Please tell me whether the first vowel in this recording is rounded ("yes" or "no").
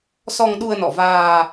yes